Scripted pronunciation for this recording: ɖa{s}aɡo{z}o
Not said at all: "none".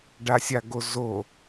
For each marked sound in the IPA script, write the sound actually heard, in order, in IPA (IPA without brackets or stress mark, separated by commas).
sʲ, z